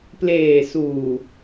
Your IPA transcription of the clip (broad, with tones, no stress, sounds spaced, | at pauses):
p l eː˨˩ s uː˨˩